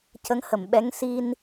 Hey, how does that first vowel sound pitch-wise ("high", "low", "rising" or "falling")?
rising